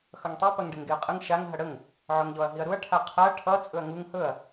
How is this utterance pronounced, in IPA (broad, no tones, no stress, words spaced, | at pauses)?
xʌŋtˤi pɐŋɖeŋɡeɐ̯qʼəŋ ʃaŋ ɦɐɽəŋ | ʕɵŋʎɔɐ̯ɦiɐ̯ɾuɐ̯ ʈʰaqʰaɐ̯ ʈʰʌ t͡sʼɵɐ̯ŋuŋ hɵɐ̯